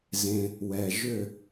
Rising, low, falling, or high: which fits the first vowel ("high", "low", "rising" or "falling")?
low